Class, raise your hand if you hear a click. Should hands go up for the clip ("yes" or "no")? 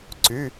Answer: yes